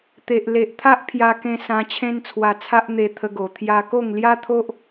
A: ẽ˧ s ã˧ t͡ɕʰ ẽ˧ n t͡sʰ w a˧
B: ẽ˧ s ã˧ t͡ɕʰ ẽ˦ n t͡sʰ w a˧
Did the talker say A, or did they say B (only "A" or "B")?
B